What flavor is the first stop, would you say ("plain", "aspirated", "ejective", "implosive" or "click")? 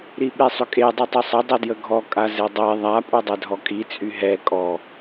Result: implosive